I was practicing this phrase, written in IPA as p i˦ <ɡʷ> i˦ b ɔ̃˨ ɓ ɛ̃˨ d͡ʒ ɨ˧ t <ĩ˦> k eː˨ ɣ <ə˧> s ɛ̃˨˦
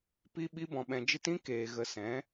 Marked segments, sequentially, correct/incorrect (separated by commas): incorrect, correct, correct